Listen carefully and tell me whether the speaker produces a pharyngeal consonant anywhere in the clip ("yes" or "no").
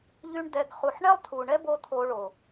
yes